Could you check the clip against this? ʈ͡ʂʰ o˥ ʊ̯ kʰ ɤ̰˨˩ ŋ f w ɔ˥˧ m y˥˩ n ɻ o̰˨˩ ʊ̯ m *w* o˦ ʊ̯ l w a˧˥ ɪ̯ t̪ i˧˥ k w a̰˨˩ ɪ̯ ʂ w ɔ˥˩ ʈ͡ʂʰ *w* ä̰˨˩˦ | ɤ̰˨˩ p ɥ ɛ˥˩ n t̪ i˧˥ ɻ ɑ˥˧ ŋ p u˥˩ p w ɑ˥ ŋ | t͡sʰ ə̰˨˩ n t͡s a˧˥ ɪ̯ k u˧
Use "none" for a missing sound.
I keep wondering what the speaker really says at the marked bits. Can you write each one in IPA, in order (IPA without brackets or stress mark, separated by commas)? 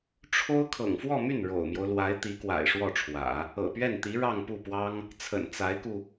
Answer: j, w